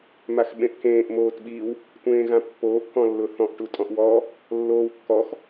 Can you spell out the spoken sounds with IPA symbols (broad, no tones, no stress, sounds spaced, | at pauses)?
m a x ɓ ẽ ʔ k ẽː ʔ m oː t ɓ i w | tʷ ẽː ɣ ã pː oː ʔ k ɔ̃ lː ʊ θ ɔ̃ ʔ ʈ u tʼ ɔ̃ ʔ w ɔ | lː oː w kː ɔ x